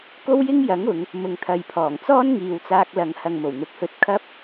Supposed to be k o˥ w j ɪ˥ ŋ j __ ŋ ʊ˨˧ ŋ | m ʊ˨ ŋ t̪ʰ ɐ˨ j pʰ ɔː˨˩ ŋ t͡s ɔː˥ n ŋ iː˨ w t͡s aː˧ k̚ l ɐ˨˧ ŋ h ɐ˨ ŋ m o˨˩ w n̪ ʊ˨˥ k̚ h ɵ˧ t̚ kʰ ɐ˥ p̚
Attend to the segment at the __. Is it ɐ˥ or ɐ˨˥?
ɐ˨˥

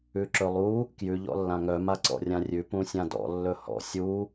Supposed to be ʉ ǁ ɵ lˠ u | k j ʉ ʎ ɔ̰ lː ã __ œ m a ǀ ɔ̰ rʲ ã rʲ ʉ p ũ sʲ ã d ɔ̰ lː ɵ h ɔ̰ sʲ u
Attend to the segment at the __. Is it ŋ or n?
ŋ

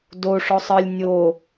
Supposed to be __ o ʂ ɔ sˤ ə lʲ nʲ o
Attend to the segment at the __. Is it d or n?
d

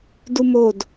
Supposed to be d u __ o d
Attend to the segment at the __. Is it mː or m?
m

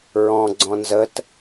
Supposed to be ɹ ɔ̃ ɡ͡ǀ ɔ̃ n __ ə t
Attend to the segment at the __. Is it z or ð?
z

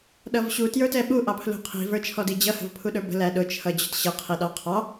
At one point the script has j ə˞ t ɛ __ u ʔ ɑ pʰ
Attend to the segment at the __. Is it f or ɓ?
ɓ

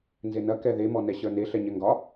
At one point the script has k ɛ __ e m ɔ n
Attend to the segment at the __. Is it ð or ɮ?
ð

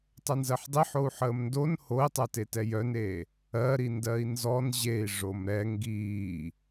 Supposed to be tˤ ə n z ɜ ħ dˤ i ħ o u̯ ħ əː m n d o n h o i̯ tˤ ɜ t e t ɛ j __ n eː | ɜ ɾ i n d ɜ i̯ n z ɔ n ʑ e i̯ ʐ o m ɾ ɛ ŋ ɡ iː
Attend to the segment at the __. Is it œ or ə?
œ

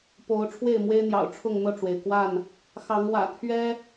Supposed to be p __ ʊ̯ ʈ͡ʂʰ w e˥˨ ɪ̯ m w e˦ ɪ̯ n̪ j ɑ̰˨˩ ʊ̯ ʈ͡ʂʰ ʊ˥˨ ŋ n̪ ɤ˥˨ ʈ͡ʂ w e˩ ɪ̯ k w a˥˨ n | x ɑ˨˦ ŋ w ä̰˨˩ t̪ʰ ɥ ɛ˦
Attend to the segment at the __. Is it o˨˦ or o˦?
o˨˦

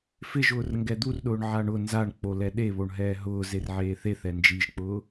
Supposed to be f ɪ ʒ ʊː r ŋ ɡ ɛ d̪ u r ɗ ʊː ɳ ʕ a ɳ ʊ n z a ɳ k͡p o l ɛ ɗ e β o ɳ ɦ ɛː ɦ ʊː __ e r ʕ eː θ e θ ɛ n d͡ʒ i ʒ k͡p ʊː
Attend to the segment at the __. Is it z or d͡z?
z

